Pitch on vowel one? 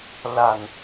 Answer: low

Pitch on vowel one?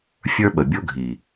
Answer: high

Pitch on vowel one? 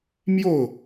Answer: falling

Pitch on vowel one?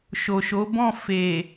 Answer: low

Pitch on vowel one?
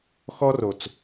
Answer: high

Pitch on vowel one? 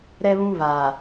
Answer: high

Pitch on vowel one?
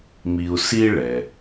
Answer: low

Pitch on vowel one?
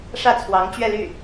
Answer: falling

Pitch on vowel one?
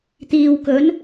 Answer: low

